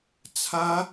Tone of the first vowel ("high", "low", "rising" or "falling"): high